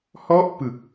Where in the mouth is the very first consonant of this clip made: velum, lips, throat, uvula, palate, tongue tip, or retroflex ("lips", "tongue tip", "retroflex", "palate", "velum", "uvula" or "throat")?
throat